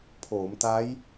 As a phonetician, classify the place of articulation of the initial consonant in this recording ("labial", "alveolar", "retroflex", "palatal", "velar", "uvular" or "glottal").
labial